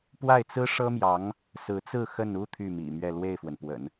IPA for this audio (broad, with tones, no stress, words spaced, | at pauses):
pwa˥˩ɪ̯t͡sɹ̩˥ʂɤ˥mjɑ˧˥ŋ | sɹ̩˧˥t͡sɹ̩˥˧ xə˥˧n u˥˧ t̪ʰy˥˩mḭ˨˩mɥɛ˥˧ lwe˥˩ɪ̯fwə˩npwə̰˨˩˦n